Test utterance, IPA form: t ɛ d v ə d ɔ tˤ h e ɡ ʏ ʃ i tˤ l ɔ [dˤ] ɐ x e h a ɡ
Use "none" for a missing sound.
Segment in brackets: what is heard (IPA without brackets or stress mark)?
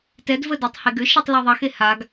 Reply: ðˤ